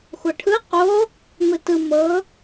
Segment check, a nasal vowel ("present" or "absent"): absent